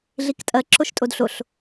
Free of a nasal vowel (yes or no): yes